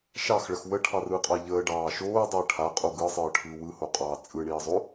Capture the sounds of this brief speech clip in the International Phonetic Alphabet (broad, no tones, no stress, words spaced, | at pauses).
ʃɑxɭəx wəʈʰɑrɯːqʼɑ ʎəːɖɑː ʃoːdˤəː ʈʰaqʼo ɡɯsˤɯːʈʰɯː wɯhoqʼɑː t͡sʼɯɳiːzˤo